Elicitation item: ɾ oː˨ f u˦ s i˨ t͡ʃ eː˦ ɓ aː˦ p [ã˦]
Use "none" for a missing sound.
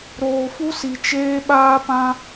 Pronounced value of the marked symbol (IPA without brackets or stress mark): ã˦